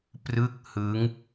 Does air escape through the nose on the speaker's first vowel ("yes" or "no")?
no